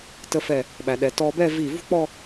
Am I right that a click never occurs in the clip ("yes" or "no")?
yes